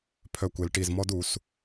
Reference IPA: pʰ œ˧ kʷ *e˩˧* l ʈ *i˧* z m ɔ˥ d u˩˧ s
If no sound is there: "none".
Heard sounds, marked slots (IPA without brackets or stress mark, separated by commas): e˩˧, i˧˩